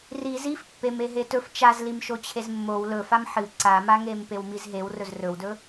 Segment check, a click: present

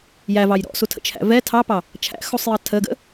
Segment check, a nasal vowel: absent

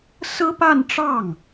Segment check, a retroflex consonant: present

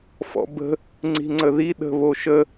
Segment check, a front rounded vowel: absent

